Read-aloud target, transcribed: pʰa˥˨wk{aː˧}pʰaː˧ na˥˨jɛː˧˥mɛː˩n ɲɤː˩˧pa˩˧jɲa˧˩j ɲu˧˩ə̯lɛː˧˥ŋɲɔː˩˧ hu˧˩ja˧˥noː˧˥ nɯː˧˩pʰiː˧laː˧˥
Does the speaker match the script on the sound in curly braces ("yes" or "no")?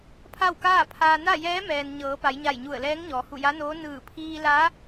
no